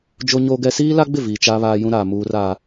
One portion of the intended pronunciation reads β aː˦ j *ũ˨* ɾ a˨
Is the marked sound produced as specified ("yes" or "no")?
no